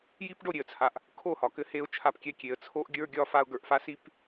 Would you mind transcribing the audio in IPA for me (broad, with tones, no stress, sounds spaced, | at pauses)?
j i˦ p ɖ o˦˨ ɾʲ e˨ ə̯ t͡sʰ a˨ ʔ | kʰ o˦˨ h ɒ˨ k ɘ˧ h e˧ ʊ̯ t͡ʃʰ a˧ p kʲ ɛ˦ kʲ e˨ ə̯ t͡sʰ o˦ ʔ ɡʲ ə˞˦ ɡʲ ɒ˧ f a˧ ʊ̯ ɡ ə˞˨ ʔ f a˦ s i˦ p